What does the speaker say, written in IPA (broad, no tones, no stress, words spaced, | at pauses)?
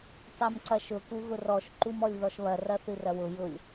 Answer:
tˤɜmǀɐʃʊ kuɣʊrɔʃ ǃumɔlʲðɔʃβɐ rɐθɨrɐwʊ jʊlʲ